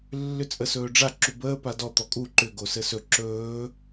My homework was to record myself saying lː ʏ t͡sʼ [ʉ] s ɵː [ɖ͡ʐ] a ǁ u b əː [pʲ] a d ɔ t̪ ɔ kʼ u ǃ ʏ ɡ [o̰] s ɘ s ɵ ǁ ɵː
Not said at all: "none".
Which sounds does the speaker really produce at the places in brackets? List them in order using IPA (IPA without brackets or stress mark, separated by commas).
ə, ɖ͡ʐ, p, o